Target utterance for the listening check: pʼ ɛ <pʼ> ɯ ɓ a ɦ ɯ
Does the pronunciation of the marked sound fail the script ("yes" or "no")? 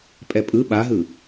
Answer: no